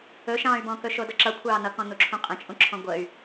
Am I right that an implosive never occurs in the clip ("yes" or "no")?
yes